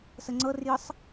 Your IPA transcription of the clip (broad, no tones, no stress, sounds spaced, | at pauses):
s ə ŋ͡ǀ ɤ r j ə sˤ